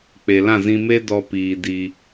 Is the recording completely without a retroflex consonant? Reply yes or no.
yes